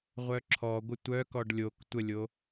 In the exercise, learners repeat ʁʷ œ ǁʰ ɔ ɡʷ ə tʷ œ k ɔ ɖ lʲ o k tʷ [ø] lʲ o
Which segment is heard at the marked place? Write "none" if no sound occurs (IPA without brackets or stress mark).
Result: ə